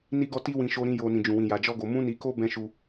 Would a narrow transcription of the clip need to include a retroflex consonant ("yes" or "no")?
no